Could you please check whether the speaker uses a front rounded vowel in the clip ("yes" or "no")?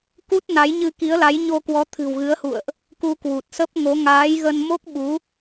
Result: no